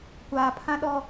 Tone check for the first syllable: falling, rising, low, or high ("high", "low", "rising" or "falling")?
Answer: low